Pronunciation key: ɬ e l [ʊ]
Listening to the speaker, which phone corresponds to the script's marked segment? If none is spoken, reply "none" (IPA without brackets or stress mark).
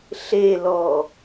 ɔ